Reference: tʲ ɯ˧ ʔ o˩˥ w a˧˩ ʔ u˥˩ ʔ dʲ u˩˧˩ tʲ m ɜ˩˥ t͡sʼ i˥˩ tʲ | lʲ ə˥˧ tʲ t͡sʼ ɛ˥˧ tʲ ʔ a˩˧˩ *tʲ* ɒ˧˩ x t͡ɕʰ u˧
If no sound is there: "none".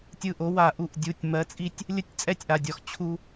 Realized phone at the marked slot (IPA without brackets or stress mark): dʲ